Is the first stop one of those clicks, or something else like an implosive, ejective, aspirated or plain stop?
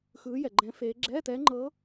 click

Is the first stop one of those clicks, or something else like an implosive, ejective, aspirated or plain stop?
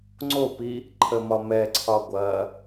click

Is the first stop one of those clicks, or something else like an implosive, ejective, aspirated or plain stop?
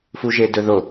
plain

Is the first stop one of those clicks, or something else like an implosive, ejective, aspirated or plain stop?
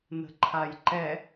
click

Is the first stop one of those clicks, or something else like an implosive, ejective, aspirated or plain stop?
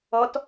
plain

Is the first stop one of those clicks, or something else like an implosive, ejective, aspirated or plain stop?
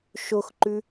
click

